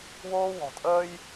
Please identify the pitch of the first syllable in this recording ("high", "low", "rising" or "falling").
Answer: high